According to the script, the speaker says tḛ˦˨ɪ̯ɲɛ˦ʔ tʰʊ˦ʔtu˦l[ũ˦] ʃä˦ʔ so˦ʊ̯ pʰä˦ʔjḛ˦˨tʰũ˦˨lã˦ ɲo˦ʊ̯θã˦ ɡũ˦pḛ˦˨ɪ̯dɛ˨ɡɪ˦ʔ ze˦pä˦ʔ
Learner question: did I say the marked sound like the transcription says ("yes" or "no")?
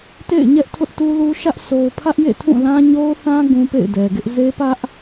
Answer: no